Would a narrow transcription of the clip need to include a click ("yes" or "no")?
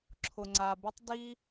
yes